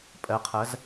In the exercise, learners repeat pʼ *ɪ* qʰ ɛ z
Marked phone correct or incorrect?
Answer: incorrect